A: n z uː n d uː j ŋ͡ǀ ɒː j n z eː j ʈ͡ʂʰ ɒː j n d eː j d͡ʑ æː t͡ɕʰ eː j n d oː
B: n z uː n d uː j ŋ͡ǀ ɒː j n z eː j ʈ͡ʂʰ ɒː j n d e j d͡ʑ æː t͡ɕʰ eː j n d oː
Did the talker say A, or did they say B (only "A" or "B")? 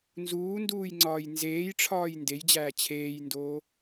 B